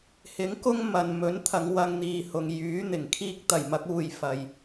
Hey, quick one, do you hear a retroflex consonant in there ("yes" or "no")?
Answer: no